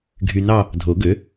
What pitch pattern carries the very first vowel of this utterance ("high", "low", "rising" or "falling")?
low